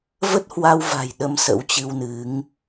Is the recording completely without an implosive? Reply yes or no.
no